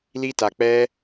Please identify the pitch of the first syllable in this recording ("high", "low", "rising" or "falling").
high